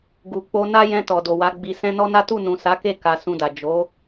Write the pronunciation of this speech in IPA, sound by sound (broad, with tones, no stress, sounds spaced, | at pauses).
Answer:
ɡ u˨ k͡p o˧ n a˦ j ɛ̃˧ t ɔ˨ d o˨ w a˨˦ ɡ͡b i˧ s ɛ̃˦ n ɔ˦ n a˦ t u˦˨ n ũ˨ s a˨˦ k e˦˨ k a˧ s ũ˧ d a˨ d͡ʒ o˨˦